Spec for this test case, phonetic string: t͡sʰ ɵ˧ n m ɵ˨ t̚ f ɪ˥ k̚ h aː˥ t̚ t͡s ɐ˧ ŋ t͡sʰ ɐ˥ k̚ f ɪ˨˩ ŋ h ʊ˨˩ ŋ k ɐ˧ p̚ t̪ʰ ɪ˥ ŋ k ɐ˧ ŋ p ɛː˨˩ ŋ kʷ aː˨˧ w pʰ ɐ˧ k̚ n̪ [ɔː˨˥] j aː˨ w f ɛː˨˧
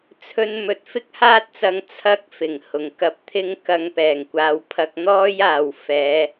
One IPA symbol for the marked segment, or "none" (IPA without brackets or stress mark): ɔː˥